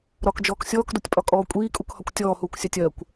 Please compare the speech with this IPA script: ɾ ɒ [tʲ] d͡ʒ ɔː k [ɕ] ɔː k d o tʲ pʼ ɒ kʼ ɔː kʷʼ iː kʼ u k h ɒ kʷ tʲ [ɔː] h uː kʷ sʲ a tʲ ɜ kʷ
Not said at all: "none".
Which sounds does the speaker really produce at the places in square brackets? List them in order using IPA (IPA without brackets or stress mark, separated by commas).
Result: k, sʲ, ɔː